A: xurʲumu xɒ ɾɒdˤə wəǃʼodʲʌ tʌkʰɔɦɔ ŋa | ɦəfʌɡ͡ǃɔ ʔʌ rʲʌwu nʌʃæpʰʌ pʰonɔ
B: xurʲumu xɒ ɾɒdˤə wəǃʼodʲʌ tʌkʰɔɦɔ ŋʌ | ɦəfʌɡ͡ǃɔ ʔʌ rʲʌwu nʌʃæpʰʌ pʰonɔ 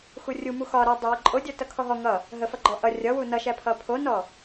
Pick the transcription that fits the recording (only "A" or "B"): B